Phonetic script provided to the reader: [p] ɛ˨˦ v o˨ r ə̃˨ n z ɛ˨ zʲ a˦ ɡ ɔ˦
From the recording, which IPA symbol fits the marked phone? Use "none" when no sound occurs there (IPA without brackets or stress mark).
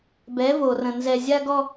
b